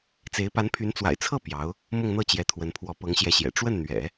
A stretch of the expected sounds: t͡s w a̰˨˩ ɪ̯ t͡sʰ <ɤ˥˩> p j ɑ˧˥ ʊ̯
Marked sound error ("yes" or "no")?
no